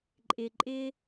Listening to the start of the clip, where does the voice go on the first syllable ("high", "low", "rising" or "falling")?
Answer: low